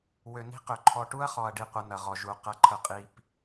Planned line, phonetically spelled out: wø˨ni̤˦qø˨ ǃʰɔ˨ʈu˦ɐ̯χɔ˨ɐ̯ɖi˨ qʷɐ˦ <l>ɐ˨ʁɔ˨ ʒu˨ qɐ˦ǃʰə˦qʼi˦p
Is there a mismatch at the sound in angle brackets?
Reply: yes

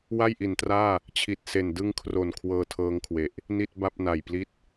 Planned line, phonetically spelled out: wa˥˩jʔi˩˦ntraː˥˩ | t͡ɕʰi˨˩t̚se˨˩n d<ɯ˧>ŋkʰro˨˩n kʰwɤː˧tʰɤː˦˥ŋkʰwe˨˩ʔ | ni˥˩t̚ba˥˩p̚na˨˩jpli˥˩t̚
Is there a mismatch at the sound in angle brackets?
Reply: no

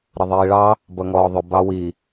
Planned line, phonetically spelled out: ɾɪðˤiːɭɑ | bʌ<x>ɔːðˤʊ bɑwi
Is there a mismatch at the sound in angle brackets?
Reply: yes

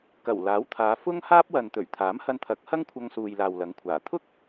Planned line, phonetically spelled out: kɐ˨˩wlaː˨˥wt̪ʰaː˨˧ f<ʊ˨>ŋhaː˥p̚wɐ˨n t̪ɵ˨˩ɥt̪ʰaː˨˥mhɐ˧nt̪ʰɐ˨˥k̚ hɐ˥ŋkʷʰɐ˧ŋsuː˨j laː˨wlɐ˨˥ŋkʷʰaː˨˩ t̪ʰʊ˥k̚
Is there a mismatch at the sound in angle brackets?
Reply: yes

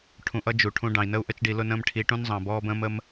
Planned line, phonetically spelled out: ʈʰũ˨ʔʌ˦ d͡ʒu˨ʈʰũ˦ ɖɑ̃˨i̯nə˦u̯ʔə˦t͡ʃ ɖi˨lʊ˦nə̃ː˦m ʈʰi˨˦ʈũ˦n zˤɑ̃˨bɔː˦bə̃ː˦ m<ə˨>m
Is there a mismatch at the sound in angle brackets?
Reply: yes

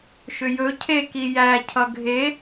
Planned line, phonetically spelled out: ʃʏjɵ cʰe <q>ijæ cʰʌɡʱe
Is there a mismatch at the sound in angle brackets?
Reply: yes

